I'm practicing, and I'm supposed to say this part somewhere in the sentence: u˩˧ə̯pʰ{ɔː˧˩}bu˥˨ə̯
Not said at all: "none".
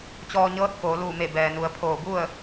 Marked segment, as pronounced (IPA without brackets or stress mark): oː˧˩